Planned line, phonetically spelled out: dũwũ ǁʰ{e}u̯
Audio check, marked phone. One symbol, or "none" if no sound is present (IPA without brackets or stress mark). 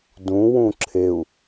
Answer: e